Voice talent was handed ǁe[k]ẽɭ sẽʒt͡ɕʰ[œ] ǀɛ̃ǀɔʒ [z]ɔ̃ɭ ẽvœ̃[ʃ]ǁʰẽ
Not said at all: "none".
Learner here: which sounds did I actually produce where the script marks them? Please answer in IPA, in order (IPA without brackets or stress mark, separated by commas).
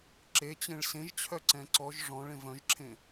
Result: t͡ɕ, œ, ʐ, ʒ